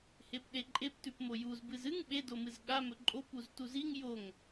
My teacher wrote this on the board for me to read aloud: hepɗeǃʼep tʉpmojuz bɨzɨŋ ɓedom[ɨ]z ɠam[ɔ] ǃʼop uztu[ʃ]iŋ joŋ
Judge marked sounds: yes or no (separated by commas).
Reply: yes, no, no